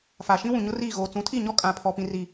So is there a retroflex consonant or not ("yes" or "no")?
no